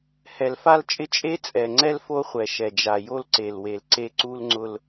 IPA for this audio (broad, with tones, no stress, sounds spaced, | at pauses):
h ɛ˨ l f a˦ l t͡ʃʼ ɪ˦ t͡ʃʼ e˦ t͡sʼ ɛ˨ ŋ͡ǀ ɛ˦ l f o˦ χʷ ɛ˨ ʃ ɛ˨ d͡ʒ a˨ j o˦ l ǀ e˨ l w e˨ l ǀ e˦ ǀ u˦ l ŋ͡ǀ ʊ˦ l